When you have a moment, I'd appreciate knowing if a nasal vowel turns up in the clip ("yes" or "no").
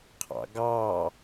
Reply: no